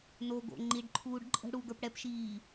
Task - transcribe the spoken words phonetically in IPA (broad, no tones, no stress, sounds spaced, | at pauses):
n o ɡ o̰ ŋ͡ǃ i ɖ ǃʰ uː ɖ ǃʼ ə̤ ɽ u ɡ ə˞ p ɽ ɛ p ʃ iː